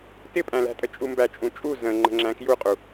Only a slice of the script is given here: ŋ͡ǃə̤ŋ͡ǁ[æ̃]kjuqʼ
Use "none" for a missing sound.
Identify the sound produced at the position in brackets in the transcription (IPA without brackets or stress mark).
æ̃